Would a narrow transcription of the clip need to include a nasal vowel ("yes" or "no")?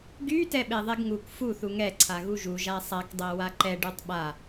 no